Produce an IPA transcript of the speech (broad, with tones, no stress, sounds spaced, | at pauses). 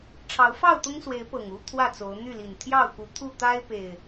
ʈ͡ʂʰ ɑ˨˦ ʊ̯ f ɑ˥˨ ʊ̯ t̪ ʊ˦ ŋ s w e˨˦ ɪ̯ p ɤ˨˩ ŋ u˦ t̪ʰ w ä˥˨ t͡s o˨˦ ʊ̯ n̪ y˥˨ l i˨˩ n t̪ʰ j ɑ˥˨ ʊ̯ k u˨˦ t̪ʰ u˥˨ t̪ a˦ ɪ̯ p e˨˩ ɪ̯